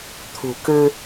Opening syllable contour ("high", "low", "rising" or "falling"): low